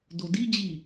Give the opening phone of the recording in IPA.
d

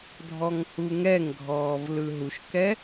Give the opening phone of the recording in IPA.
dʱ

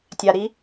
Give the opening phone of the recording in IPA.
tʲ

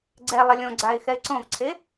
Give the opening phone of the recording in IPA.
ɡ͡ǀ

